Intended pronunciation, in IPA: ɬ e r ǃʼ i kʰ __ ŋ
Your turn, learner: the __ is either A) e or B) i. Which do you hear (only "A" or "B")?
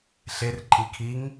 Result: B